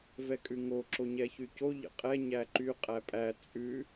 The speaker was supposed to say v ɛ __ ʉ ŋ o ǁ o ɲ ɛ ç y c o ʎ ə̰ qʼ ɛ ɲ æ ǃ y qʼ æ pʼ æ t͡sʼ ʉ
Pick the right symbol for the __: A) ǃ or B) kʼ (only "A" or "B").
B